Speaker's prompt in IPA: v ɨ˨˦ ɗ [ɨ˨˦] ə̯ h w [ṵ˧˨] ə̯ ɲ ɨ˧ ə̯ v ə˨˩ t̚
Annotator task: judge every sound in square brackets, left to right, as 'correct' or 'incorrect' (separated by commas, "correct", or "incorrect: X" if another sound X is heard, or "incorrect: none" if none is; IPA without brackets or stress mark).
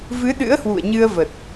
incorrect: ɨ̰˧˥, correct